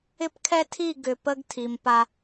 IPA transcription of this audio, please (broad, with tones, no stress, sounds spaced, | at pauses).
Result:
ɪ˦ p kʰ ɛ˦ tʰ i˦˨ ɡ ʏ˨ p ə˦ ɡ tʰ i˨ m p a˦